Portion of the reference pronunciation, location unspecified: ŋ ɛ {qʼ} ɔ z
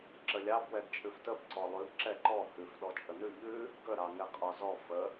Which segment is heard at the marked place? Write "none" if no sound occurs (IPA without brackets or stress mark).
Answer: qʼ